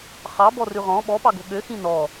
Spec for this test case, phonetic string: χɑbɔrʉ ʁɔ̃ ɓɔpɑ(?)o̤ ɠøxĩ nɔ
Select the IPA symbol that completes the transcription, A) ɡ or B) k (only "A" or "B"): A